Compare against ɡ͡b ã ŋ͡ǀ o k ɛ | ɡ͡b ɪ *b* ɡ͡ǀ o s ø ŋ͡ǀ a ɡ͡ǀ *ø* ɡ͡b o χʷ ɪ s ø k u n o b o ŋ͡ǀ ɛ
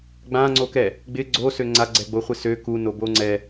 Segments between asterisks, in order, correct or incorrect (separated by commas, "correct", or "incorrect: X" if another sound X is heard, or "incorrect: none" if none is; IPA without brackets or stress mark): incorrect: none, incorrect: ɛ